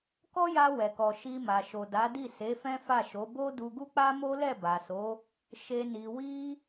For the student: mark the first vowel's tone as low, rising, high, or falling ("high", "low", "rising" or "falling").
high